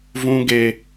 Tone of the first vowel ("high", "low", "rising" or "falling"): high